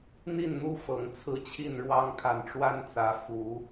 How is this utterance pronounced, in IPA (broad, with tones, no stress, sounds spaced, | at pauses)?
n̪ i˥˨ n n̪ u˦ f ɤ˨˦ ŋ t͡sʰ ɹ̩˦ t͡ɕʰ i˥˨ n ɻ w ɑ˦ ŋ kʰ a˨ n ʈ͡ʂ w a˦ n t͡s ä˨˦ f u˨˦